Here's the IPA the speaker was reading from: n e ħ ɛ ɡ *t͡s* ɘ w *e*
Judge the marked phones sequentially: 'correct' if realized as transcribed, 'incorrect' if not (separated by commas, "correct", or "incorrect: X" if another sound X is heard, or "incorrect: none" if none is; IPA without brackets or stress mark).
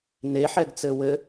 correct, incorrect: ɘ